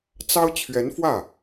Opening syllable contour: high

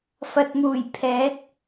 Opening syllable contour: low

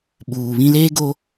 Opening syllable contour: low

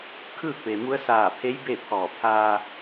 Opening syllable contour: falling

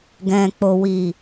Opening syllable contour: low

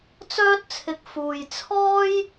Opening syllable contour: high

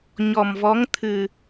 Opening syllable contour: low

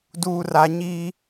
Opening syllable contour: low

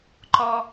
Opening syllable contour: high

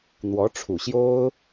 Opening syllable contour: rising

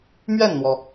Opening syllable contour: falling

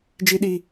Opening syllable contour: high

